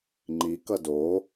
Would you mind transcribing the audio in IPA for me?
ŋ͡ǃ i k ʌ d o

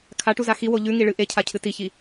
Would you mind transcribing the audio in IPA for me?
kʰ a ʈ u z a x i w o ʎ ʉ ŋ i ɭ ɨ ʔ e cʰ a cʰ ɨ t i ç i

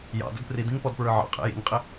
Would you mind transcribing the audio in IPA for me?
j ɑ̰ d ʊ d p r i d ĩ ŋ p ɔ d p ɹ ə˞ ʕ ɑ̰ qʼ ɛ̰ j ḭ ŋ qʼ ɪ

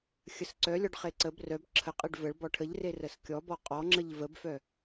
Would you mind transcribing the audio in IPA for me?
xʲ ə s ǀ œ lʲ ɔ ɖ χ e ǀ ə b r œ b ǁʰ ə qʼ e ɖ v ə ɭ b ɔ ʈʰ ə ʎ r e r ə s kʲ ɔ b ɔ qʼ ɔ ŋ͡ǁ ə ʎ v ə b f œ

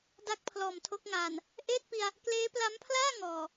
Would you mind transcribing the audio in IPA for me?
d a˥˩ k̚ pʰ l ɔː˨˩ m tʰ o˦˥ k̚ ŋ aː˨˩ n | ʔ eː˥˩ t̚ p i˧ a̯ | k l eː˦˥ p l a˦˥ m pʰ l aː˥˩ ŋ ɔː˨˩

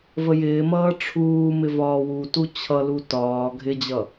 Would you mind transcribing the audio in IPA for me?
v ə j ɪː m ʌː ʈ͡ʂʰ uː m ɪ v ɒː w u t u t͡ɕʰ ʌ l u t ɒː ɡʱ ɪ d͡ʑ ʌ

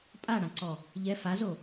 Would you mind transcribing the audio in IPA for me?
pʼ a ɽ ã ǀ ɔ | ʎ ɛ f a z o

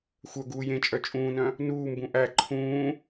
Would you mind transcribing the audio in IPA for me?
xʷ œ ɡ uː j ẽ t͡ʃʼ œ t͡ʃʼ ũː n œ̃ | n uː m b ũ ʔ æ ǃʰ ũː

